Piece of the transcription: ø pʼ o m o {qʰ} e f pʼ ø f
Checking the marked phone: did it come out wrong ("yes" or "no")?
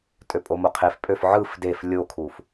no